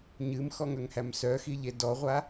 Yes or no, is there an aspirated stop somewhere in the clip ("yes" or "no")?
no